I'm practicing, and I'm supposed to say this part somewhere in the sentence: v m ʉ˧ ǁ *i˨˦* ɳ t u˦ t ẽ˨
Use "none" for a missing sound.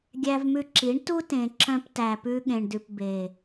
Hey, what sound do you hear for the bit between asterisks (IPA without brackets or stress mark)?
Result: i˨˦